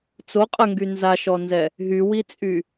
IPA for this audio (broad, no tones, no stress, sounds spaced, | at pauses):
t͡s o qʼ ə ŋ ɡ y n z a ʃ ɔ n z ɛ | ɦ y w i t͡sʼ y